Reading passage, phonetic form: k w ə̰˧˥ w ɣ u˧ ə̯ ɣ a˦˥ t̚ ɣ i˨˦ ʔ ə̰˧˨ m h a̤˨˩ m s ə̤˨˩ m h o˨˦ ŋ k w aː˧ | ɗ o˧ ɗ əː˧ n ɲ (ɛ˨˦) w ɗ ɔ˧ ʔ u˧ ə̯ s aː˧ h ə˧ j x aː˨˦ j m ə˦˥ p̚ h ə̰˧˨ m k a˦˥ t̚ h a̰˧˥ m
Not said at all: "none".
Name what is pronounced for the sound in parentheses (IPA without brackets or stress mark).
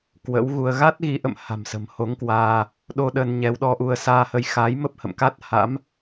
ɛ˨˦